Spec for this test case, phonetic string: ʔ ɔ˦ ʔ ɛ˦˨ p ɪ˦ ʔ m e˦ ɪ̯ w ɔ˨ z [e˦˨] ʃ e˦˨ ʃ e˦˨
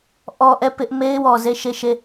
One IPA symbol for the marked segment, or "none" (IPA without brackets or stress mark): e˦˨